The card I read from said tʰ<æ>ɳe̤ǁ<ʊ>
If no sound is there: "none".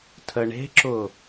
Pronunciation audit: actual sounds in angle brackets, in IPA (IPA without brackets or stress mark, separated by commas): ə, ʊ